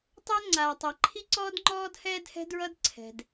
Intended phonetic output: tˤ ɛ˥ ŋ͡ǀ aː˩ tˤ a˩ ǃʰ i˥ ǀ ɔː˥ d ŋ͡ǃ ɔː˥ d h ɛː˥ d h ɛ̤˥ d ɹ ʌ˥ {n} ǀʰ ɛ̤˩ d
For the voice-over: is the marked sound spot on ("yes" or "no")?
no